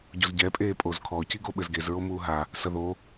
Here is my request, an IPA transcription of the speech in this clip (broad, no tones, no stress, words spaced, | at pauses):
ɟozɟɛ pʼeːpʼozkʰɔ ciɡoɓɘzɡez ɹomuːɦa | sɐðo